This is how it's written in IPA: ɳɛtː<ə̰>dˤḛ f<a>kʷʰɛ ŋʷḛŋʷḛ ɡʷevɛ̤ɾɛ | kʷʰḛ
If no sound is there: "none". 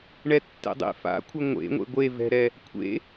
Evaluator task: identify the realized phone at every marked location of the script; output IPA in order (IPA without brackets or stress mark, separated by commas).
ɛ̰, a̰